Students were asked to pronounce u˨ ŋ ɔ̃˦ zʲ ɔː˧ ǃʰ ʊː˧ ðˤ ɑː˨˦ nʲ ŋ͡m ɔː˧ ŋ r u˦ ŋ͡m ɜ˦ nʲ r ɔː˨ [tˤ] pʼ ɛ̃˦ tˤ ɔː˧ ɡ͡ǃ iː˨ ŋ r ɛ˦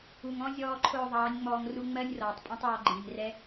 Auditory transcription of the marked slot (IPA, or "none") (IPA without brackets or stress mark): tˤ